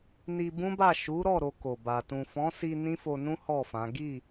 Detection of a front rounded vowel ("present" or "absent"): absent